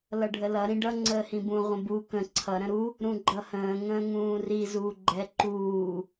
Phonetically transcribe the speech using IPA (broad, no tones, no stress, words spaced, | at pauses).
lʌɖʱəlʌ ɾĩɖʌ ŋ͡ǀəːhĩbũ ʁʷə̃bu kə̃ ǀʰʌ ɾə̃ɾu | ɾũɡ͡ǃʌhə̃ː ŋə̃ːŋũːri zuːɡ͡ǃɛ ǃuː